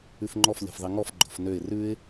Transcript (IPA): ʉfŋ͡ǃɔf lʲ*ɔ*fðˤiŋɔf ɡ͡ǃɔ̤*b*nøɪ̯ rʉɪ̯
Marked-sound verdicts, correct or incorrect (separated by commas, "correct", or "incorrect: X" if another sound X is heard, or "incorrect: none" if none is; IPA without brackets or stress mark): incorrect: ɔ̤, incorrect: f